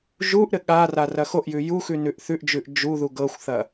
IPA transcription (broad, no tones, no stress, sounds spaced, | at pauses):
ʒ u ʔ ɾ ɘ ɠ a r a r ɐ x o ʔ j ʉ j u x ʉ n ʉ ʔ θ ʉ ʔ d͡ʒ ʉ ʔ d͡ʒ u ð u ɡ ɤ xʷ θ ɐ